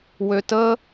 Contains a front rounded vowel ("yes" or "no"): yes